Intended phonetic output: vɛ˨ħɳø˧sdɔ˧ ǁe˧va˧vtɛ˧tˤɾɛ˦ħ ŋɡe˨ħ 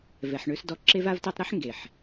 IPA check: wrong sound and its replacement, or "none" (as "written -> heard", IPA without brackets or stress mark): none